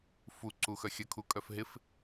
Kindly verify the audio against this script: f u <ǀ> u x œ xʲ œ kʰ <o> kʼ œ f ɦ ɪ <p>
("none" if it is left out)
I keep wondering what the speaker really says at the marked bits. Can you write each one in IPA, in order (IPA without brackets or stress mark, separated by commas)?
ǀ, u, f